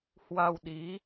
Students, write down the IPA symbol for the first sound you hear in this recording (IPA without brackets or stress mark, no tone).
h